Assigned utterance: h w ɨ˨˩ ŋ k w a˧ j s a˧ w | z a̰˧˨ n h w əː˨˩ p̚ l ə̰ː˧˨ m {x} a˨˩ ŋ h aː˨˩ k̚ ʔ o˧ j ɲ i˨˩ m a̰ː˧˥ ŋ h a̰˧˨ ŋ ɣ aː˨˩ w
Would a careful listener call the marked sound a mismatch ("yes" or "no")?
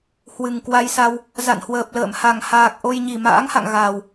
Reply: yes